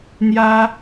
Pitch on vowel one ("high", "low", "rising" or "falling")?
high